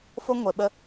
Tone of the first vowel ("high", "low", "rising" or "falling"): high